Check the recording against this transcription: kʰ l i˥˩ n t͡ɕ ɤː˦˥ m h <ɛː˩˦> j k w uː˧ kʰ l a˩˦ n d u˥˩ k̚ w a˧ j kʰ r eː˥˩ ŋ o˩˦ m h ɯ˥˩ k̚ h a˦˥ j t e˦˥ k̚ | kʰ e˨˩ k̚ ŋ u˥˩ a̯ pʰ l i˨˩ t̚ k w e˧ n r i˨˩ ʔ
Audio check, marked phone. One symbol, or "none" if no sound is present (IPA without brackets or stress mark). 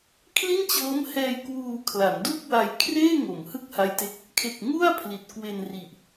ɛː˧